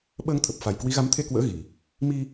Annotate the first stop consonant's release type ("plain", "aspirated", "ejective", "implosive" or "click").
implosive